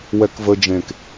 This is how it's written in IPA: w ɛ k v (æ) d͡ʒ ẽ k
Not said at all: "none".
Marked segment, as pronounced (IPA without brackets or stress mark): ə